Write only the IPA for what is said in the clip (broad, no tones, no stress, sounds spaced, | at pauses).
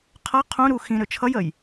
qʰ ʌ qʰ ũ ɾ u x ĩ ɾ ø t͡ʃʰ ʌ j ə j